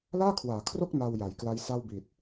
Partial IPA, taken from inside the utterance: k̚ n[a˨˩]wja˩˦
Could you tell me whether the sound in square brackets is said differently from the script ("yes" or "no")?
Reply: yes